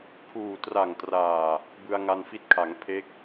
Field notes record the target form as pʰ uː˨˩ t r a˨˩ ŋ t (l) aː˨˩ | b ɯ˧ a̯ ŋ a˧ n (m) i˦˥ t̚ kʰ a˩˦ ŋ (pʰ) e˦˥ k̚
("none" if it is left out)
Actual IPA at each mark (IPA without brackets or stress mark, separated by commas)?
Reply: r, f, pʰ